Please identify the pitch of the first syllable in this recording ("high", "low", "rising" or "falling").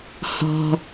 low